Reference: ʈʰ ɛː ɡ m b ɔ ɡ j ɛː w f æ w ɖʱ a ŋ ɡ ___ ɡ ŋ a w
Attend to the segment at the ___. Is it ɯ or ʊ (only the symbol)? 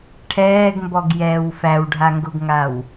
ʊ